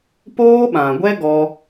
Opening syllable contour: high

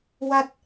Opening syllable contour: falling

